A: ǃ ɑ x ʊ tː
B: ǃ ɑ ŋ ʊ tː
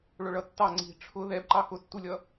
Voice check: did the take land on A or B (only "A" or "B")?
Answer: A